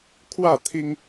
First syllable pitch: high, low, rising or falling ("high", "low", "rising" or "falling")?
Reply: falling